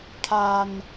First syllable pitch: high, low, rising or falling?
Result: low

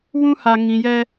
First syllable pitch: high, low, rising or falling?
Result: high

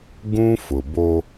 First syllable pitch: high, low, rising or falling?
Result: high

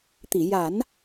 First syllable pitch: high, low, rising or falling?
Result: low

